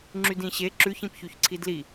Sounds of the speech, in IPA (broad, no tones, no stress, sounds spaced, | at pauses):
ŋ͡ǁ y d ĩ ɕ e ǁ ʉ ç ĩ p ç y ç ǀʰ i d l i